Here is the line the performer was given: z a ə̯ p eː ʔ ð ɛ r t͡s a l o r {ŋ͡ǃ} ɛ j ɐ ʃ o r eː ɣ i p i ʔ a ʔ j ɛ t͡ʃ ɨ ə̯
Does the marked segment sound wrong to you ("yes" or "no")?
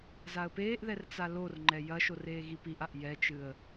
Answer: no